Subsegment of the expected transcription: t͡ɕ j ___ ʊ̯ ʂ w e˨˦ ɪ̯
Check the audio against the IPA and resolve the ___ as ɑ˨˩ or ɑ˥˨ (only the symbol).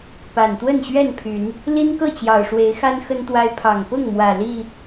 ɑ˨˩